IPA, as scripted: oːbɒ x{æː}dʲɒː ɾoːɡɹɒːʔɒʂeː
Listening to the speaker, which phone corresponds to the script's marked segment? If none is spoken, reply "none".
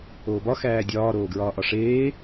æː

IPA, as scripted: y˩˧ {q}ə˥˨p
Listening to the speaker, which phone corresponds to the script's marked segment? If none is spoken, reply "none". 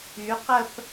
q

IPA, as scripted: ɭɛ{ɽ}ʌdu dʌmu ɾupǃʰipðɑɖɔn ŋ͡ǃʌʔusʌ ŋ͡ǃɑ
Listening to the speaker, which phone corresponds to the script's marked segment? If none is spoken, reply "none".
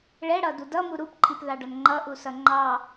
ɽ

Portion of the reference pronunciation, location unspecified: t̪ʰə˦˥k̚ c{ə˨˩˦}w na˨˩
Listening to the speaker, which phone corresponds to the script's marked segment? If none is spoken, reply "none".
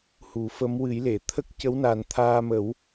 ə˧˥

